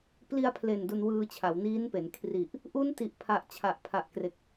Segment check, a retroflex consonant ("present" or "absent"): absent